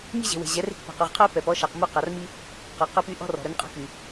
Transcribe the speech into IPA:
mʲ e̤˦ ʑ e̤˨ w e̤˨ ʑ ɛ˨˦ r e̤˦˨ k p e̤˨ q u˨ ʁ qʰ œ˦ p ɛ˨ p ɔ˦ ʃ ɑ˨ q m u˦ q ɑ˨ r m i˦ | q œ˨ q œ˦ p y˦ ʔ ɔ̤˦ r ɔ̤˨ ɾ œ˦ n qʼ ɔ̤˦ k y˨

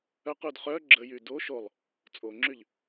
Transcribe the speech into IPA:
œ q u d χ œ ɡ͡ǁ ə j y d o ʃ o lˠ | t͡sʼ o ŋ͡ǁ y ʎ

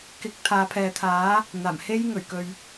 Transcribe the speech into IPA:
k ɪ˨˥ k̚ t̪ʰ aː˨˧ pʰ ɛː˨ t̪ʰ aː˨˥ | n̪ aː˨˩ m h e˥ j ŋ ɵ˨˩ ɥ k ɵ˨ ɥ

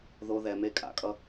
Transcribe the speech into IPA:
ð o˨ ð ɛ˨ m e˦ kʼ a̰˨ kʼ ʌ˦

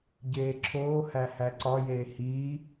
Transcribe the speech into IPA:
ɟ eː ǁʰ oː h æ h æ ǀ ɒ j eː h iː

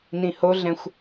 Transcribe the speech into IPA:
n ĩ h o ɮ ɛ̃ xʷ

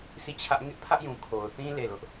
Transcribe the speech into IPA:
sʰ i˦˨ t͡ɕʰ ä˦ ʔ ŋ ɪ˦ ʔ pʰ ä˦ ʔ j ũ˨ kʰ o˨ ʊ̯ θ ĩ˦ l e˦˨ l ʊ˦ ʔ

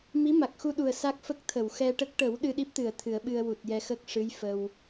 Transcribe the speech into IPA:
m i˧˥ m a˨˩ k̚ x u˧ ɗ u˨˩ ə̯ s a˦˥ k̚ f ə˦˥ k̚ t̪ʰ ə˨˩˨ w x ɛ˧ ʈ ə˦˥ k̚ ʈ ə˨˩˦ w ɗ ɨ˧ ɗ i˦˥ p̚ t̪ ɨ˨˩˨ ə̯ t̪ʰ ɨ˨˩˦ ə̯ ɓ ɨ˧ ə̯ w u˨˩ t̚ j ɛ˧ x ə˦˥ k̚ ʂ ɨ˧˥ j f ə˧ w

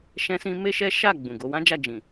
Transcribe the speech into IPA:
ʃ ɛ̃˦ s ĩ˦ m e˦ ʃ ɛ˦ ʃ a˦˨ ɡ͡b ũ˨ ɡ o˨˦ w ã˦ d͡ʒ a˦˨ d͡ʒ ĩ˨

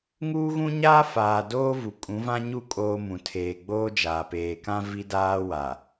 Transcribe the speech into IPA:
ŋ uː˦ ɣ ũ˦ ɲ aː˦ f aː˨ d oː˦ v u˨ kʼ ũ˨˦ v ã˦ ɲ u˦˨ kʼ oː˦ m ũ˨ tʰ eː˨ ɡ͡b oː˦ d͡ʒ aː˨ p eː˨ k ã˦ v i˦ d aː˦ w a˨

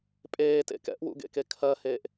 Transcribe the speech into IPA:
pʼ eː t ḛ k ɛ̰ ʔ w ṵ ɡ ḛ k e kʰ ɜ h eː ʔ

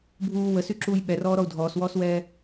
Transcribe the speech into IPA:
bʱ uː w ə s y ǁ uː j ɓ ɛ r ɔː ɾ ɔ u̯ dʱ ɔː s w ɔː s w ɛː

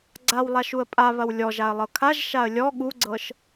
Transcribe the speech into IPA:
ɡ͡ǀ a w lˠ a ʃ u ə̯ pʼ a β ɐ w lʲ ɔ ʒ a ə̯ lˠ ɤ kʰ a ʒ ʃ a ə̯ lʲ ɔ ɠ u ɡ͡ǀ ɤ ʃ

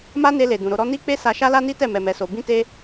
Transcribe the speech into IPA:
m a˦ n e˧ l e˨ d ũ˨ ɾ o˧ ɾ ɔ˦ n i˦ k͡p e˦ s a˧ ʃ a˦ l a˦ n i˦ t ɛ˦˨ m ɛ˨ m ɛ˨ s o˨ b ĩ˧ t e˧

